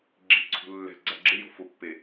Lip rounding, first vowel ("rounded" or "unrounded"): unrounded